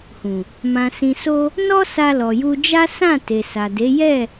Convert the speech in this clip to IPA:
hũ˨ | mã˨sĩ˨so˧ | nɔ˦ sa˧lɔ˨ju˧ d͡ʒa˦ sã˦˨ te˨sa˨de˨˦ jɛ˦˨

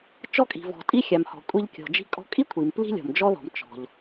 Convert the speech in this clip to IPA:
t͡ʃɔ˧kʼi̤˩vɔ̤˩tʼi˧ xʲa˩mhɔ̤˩ kʷʼi˧ʎ kʲɔ̤˩d͡ʒi̤˧ kʼɔ̤˧kʼi˥ kʷʰi˩m pli̤˥ lʲɔ̤˩md͡ʒɔ˥ðɔ̤˩m t͡ʃɔ̤˩ʎ

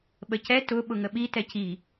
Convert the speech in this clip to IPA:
ɓəcɛ tʊ ɓʊŋəɓi tɛci

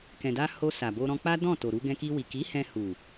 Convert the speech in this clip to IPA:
kɛ̃˨da˧ ho˧ sa˨bo˧ ɾɔ̃˧k͡pa˦dɔ̃˦˨to˨ ɾu˧ ɡɛ̃˧ki˧wi˨ ki˨˦ hɛ̃˧hu˨

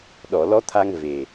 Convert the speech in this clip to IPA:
ɗɔ˨˩˨lɔ˧˥t̪ʰa˧ŋ ve˨˩

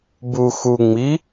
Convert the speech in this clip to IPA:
bu xu ŋ͡mi

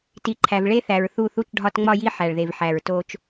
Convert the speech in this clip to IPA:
ti˨ǃʰæ˨v ɭe˦θæ˨ɹθu˦˨ θu˦t͡ʃɖʱɒ˦tŋ͡mɒ˦ji˦ ħæ˨ɭðe˨vħæ˨ɹto˦t͡ʃ

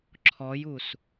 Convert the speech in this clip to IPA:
ǁʰɔjus

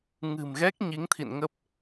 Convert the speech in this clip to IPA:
ŋɨ̤˨˩mɣɛ˦˥k̚ ɲi˨˦ŋt̪ʰḭ˧˨nŋə˦˥p̚

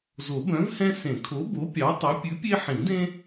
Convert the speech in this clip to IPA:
zo˨˩˦bœ̃˨˥vhɛ̃˦ sẽ˨˩˦kʰo˨˥bo˨˥ pʲɑ˨˥tˤi˨˥ pʲʉ˨˥pʲe˦ħĩ˨˩˦dẽ˦

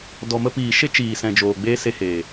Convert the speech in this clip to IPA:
dɔ˨mə˧ piː˨ʃe˦ t͡ʃiː˨sɛ̃˨d͡ʒoː˨ ɡ͡beː˦se˧heː˨

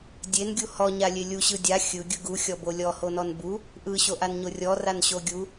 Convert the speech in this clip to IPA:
dʲenɡʲu hɔɲalʲe lʲuɕɯ dʲa xʲɯɡʲɯ ɡuxʲɔbo lʲɔhonɔn bu | ʔɯɕoʔanɲo rʲɔranɕo ɡʲu

